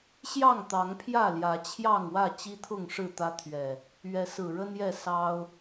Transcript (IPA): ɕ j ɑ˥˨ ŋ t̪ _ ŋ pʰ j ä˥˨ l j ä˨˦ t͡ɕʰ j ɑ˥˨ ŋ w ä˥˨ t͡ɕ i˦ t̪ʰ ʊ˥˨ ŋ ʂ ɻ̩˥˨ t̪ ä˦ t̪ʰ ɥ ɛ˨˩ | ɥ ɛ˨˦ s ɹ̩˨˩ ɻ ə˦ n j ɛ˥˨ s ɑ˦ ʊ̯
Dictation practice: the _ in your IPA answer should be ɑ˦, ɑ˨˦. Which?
ɑ˨˦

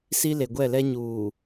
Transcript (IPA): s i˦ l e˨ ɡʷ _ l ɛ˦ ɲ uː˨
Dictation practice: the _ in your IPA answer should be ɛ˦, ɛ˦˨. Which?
ɛ˦˨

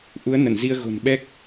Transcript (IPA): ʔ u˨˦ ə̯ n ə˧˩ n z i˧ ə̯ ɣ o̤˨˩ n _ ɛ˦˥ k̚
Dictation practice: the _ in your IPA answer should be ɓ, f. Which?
ɓ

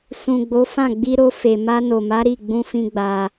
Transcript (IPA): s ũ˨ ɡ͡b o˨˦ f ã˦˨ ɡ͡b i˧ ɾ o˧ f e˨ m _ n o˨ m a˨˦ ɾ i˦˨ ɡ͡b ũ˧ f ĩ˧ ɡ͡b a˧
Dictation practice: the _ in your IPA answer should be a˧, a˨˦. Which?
a˧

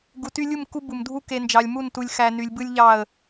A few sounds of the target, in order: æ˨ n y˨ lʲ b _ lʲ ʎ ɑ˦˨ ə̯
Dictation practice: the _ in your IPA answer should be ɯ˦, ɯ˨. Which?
ɯ˦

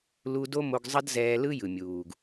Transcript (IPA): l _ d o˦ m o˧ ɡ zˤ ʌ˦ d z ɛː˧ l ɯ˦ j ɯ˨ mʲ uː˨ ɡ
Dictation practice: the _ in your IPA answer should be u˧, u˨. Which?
u˧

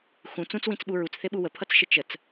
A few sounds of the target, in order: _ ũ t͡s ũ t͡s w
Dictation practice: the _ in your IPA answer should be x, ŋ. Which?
x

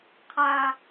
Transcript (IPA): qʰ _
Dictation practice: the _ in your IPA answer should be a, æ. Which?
a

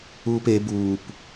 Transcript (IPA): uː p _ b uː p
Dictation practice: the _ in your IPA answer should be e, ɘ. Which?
e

